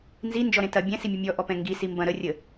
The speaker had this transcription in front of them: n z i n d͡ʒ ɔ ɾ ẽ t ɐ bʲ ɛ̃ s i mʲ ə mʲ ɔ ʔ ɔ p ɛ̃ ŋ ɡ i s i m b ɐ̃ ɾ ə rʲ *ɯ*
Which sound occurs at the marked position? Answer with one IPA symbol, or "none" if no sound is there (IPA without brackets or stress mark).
ə